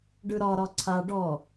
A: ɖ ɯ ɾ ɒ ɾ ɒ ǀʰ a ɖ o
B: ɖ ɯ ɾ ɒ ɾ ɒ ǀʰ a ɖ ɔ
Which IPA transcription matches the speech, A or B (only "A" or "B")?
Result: B